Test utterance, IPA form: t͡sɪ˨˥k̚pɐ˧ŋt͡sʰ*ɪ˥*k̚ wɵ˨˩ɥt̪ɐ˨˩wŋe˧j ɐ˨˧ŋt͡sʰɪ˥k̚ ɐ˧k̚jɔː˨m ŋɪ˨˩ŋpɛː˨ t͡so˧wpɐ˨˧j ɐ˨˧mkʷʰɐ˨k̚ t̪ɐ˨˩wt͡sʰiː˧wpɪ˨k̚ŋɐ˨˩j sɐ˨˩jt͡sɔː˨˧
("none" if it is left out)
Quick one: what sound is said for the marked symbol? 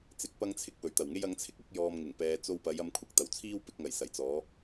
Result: ɪ˧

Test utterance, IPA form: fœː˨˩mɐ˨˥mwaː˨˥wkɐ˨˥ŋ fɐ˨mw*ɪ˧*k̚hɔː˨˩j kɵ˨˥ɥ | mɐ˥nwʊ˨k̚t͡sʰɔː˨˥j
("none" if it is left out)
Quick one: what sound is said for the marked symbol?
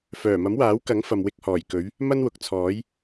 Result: ɪ˧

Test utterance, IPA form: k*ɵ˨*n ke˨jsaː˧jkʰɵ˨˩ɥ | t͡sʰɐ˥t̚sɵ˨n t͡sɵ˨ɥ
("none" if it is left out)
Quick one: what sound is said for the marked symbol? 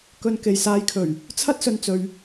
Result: ɵ˨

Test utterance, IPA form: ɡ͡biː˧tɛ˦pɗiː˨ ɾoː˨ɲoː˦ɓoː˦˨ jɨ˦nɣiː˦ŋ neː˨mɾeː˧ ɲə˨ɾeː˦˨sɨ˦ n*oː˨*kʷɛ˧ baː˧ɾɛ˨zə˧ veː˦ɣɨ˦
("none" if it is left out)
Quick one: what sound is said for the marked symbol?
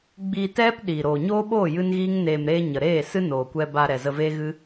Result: oː˨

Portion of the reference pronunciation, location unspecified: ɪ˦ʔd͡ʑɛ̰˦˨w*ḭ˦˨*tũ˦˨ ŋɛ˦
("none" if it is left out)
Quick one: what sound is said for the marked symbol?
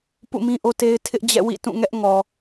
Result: ḭ˦˨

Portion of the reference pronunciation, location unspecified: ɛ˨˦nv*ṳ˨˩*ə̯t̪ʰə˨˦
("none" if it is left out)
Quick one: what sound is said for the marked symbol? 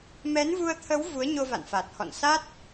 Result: u˧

